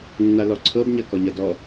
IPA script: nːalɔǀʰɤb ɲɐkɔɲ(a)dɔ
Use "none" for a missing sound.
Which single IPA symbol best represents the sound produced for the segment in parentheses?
ɐ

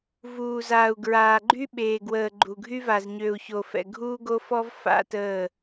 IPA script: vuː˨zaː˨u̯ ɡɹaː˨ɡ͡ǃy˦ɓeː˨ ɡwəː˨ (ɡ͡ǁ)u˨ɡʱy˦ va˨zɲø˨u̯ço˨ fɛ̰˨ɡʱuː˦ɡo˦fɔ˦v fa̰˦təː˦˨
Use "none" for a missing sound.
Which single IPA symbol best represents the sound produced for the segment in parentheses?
ɡ͡ǃ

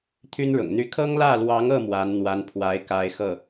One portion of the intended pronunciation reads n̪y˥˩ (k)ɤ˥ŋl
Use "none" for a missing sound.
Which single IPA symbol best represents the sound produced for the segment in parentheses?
kʰ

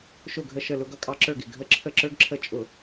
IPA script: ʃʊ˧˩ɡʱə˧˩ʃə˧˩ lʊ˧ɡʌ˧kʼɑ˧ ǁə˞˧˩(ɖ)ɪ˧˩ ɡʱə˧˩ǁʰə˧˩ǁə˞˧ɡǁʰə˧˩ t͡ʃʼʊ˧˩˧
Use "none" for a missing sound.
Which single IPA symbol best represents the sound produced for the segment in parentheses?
ɡ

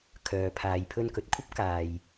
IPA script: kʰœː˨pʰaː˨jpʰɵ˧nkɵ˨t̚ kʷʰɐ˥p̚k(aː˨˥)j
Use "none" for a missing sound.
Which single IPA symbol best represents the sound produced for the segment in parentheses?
aː˨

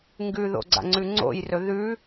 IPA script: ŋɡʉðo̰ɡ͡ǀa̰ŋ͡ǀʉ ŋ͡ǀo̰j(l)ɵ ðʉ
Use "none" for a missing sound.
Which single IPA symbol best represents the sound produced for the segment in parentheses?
r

